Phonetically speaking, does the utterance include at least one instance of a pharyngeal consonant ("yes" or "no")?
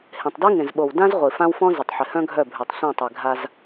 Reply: yes